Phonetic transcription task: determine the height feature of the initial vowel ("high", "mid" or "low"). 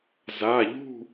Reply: low